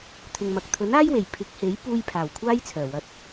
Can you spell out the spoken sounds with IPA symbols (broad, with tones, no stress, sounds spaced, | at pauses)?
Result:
t̪ʰ ɪ˨ ŋ m ɐ˨ k̚ t̪ʰ ɵ˨˥ n aː˥ j w e˨˩ j pʰ ɪ˨˥ k̚ h e˨˥ j p uː˧ j pʰ aː˨˩ w kʷʰ aː˥ j t͡sʰ œː˨˩ w ɐ˧ t̚